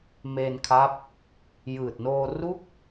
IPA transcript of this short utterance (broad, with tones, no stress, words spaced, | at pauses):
meː˧nkʰa˦˥p̚ | jɯː˨˩t̚noː˧ru˥˩k̚